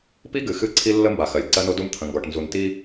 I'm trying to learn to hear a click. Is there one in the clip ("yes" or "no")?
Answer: yes